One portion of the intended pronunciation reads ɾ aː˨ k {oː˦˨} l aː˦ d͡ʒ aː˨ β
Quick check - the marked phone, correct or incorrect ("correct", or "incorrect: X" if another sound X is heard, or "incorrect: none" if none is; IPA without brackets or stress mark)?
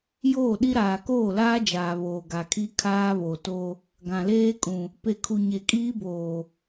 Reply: correct